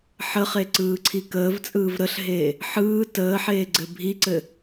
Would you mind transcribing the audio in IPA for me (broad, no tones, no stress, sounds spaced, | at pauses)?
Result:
ħ ə χ e ǀ ɯː ǀʰ i k əː v t͡sʼ ɯː v ɾ ə ɬ ɦ eː | ħ ɯː t əː ħ eː ɡ͡ǀ ɘ bʱ i ǀ ɘ